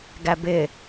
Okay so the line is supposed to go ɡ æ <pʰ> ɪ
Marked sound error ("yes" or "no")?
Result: yes